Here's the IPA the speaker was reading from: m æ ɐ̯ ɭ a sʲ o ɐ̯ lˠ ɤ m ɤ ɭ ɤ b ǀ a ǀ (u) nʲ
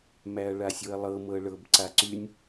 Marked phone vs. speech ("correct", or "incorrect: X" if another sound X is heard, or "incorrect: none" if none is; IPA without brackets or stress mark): incorrect: y